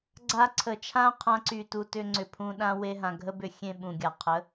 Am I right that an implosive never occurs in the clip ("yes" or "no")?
no